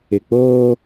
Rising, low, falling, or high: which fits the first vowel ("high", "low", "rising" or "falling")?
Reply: low